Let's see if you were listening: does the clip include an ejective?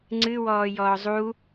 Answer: no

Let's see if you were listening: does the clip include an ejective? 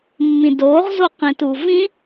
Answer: no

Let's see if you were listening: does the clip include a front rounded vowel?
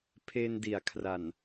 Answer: no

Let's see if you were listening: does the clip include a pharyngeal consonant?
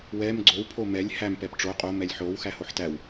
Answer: yes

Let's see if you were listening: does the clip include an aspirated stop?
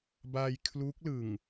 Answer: yes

